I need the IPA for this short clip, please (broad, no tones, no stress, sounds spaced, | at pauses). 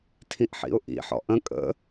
tʰ ĩ ʔ ħ ḭ ʊ̯ ʔ ḭ ħ ɔ̰ ʔ ə̃ kʼ ə̰